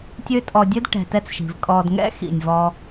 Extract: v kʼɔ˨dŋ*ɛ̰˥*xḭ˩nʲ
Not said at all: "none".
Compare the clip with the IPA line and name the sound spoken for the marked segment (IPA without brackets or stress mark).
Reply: ɛ̰˥